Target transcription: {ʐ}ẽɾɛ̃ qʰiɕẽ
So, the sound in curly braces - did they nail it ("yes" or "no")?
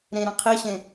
no